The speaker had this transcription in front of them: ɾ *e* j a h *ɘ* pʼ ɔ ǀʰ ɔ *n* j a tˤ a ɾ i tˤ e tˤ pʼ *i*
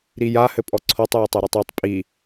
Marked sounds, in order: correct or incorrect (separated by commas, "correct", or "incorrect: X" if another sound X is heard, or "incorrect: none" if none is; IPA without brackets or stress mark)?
incorrect: i, correct, incorrect: tˤ, correct